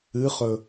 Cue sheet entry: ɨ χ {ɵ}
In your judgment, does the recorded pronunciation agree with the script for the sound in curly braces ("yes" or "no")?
yes